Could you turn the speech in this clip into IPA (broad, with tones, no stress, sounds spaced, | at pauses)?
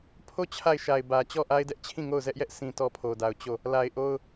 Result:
pʰ o˦˨ t͡ɕʰ a˦˨ ɪ̯ ʃ a˨ ɪ̯ b ä˨ t͡ɕ ɔ˦˨ ʔ a˦ ɪ̯ d ɛ˦ ʔ t͡ɕʰ ĩ˦˨ ŋ o˦˨ ʊ̯ z ɛ˦ ʔ j ɛ˦ ʔ s ĩ˨ t ɔ˦ pʰ o˨ d a˨ ʊ̯ t͡ɕ o˦˨ | l a˨ ɪ̯ ʔ o˦ ʊ̯